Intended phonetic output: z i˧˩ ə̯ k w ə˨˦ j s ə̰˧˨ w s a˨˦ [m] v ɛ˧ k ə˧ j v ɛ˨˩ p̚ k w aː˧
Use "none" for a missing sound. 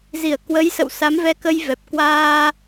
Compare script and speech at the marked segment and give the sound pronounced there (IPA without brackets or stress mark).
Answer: m